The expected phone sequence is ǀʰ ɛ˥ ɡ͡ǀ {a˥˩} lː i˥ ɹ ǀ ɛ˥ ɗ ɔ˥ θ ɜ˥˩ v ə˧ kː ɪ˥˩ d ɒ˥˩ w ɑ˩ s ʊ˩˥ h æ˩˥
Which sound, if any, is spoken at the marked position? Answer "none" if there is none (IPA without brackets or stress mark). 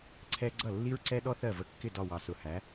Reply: ʌ˥˩